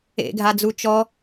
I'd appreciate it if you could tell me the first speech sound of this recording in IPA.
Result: ḛ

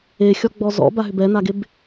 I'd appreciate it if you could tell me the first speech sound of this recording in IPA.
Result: e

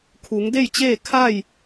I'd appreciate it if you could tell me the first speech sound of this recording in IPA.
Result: kʰ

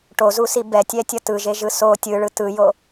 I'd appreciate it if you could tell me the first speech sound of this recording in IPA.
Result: ʈ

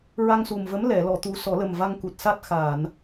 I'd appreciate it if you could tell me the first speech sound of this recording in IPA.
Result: ɹ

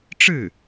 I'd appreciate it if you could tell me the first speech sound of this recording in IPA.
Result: ʈ͡ʂ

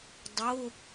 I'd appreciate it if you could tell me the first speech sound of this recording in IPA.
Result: dˤ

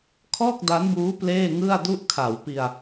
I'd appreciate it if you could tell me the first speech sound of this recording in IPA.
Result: kʰ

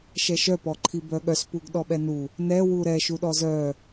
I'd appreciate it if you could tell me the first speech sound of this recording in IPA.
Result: ʃ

